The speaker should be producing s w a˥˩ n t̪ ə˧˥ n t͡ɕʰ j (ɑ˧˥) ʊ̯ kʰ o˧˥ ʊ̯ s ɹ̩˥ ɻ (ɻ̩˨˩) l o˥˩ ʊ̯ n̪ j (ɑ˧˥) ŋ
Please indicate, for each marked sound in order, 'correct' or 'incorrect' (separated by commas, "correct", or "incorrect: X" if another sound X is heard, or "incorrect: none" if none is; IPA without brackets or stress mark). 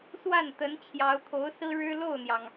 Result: correct, incorrect: ɻ̩˥, incorrect: ɑ˩